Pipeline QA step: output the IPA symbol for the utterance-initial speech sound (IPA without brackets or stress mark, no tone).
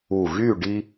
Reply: u